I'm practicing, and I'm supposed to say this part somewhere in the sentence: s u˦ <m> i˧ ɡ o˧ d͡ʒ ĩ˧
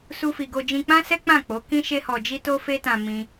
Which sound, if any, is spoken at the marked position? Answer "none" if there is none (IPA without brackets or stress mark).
f